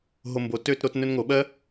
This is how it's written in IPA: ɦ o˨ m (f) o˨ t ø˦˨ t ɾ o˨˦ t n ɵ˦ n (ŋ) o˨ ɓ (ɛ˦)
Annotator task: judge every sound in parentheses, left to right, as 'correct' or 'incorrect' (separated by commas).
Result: incorrect, correct, incorrect